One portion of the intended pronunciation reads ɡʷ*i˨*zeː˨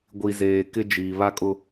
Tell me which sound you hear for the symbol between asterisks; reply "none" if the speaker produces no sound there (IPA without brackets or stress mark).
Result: i˨